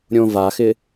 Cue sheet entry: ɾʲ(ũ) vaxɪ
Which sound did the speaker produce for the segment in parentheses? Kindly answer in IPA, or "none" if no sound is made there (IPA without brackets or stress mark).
õ